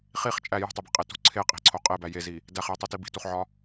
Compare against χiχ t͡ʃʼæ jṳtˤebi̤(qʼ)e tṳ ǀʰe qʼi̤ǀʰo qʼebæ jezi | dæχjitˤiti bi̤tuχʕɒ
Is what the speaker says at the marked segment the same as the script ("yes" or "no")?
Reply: yes